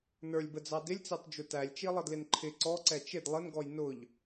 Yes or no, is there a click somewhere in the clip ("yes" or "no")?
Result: yes